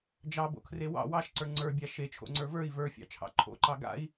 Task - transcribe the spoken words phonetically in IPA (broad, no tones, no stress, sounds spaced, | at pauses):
d͡ʒ ɑ b o̰ kʰ r e w ɑ̰ w ɑ ʃ ǀ ə˞ ŋ͡ǀ ə˞ bʲ a ʃ e t͡ʃʰ o̰ ŋ͡ǀ ə˞ v ə˞ i̯ v ə˞ fʲ ɑ̰ t͡ʃʰ ɑ̰ ǃʰ o̰ ǃ ɑ ɡ a̰ i̯